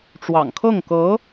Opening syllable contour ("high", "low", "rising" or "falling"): low